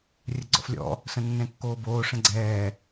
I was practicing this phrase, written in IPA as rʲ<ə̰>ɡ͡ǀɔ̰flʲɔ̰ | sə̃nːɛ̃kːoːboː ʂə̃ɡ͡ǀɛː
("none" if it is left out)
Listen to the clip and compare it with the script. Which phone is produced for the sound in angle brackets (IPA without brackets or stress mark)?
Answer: ə